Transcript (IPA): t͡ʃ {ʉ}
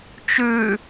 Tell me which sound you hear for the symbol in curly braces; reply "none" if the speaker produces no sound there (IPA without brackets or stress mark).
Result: ʉ